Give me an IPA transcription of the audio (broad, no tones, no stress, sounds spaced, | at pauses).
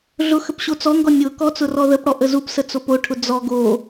ɮ ʊ x ə p ɕ o t͡s ɔ ŋ ɡ ɔ nʲ ʊ k ɔ t͡s ʊ r ɔ ð ə p ɽ ɔ ʔ ə z u p s ə t͡s o p o ʈʰ ʊ d͡z ɔ ɡ o